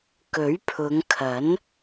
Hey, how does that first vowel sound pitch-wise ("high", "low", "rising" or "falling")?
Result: rising